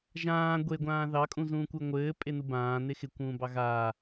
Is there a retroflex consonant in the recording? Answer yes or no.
no